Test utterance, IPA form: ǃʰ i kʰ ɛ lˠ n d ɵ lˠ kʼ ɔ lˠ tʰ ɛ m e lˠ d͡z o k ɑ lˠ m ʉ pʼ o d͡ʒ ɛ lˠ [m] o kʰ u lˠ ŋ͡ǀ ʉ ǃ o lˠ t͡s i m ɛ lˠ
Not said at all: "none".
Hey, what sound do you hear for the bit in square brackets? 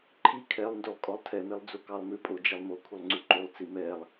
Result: m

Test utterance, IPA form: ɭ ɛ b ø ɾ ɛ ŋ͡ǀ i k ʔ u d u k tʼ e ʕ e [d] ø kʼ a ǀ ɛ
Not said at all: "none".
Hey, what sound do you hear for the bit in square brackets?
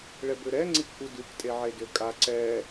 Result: d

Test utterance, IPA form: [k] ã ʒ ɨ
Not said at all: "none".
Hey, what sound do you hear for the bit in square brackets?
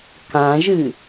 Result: k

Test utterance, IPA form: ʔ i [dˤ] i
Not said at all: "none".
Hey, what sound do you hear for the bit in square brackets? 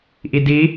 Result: d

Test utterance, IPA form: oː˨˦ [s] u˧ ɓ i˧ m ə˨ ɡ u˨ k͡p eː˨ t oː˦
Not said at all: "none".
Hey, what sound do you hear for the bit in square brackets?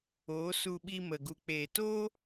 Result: s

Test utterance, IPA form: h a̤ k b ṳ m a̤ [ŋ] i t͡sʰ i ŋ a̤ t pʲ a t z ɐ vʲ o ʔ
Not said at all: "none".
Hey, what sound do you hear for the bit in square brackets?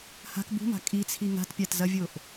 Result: kʼ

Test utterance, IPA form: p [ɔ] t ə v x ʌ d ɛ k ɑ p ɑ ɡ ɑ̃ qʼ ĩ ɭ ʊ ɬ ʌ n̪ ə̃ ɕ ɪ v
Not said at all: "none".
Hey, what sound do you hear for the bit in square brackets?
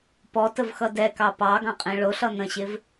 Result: ɔ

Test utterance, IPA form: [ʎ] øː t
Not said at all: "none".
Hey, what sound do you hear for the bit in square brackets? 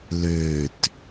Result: l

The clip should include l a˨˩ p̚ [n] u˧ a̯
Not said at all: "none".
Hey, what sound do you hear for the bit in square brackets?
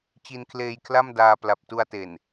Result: t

